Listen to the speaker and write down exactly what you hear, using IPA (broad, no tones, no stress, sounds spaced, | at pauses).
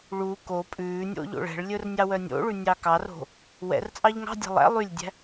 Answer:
ɭ u k o pʼ ʉː nʲ o̰ ʎ o̰ ɭ ɛ̤ ɭ lʲ ɵ r nʲ ɑ w œ nʲ o̰ ɭ ʉ nʲ ɑ k ɑ r o̤ | w ɛ̰ r t͡sʼ ɑ ʎ ŋ ɑ̤ dʲ ɛ̤ lˠ æ̰ lˠ y lʲ dʲ æ̤